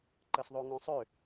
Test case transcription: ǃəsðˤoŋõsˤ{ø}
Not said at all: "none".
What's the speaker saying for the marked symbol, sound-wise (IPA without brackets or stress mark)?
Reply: ø